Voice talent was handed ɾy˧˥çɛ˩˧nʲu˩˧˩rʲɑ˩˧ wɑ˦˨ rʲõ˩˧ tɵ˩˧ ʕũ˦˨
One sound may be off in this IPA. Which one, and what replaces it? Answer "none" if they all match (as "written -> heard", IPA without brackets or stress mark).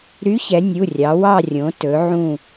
none